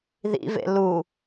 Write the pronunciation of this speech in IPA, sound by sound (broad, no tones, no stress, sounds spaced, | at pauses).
ð ḭ v ḛ l u